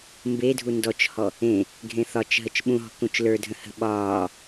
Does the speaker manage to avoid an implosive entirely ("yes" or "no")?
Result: no